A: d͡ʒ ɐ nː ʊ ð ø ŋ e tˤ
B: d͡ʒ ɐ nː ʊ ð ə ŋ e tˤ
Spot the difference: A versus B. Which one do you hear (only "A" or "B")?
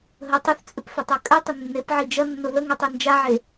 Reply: B